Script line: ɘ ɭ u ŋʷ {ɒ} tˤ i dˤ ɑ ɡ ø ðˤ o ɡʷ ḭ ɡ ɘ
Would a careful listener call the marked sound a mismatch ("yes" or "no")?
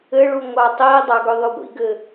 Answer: yes